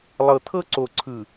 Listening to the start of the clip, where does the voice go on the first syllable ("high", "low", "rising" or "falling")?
low